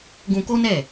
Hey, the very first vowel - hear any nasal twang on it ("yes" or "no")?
yes